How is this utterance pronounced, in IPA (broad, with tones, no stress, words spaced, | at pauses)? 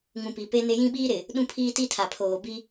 ŋũ˨pi˨pe˦ nɪ˦ jĩ˦ɓiː˦ ɾɪ˨ | ɗũ˦pʰiː˦ ti˦tʰa˨pʰoː˨ bi˦